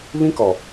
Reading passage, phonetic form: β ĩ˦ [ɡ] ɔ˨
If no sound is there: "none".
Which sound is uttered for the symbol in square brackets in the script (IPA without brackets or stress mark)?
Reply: k